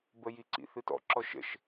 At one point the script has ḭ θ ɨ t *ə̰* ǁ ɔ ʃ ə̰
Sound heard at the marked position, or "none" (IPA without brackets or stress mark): ɔ̰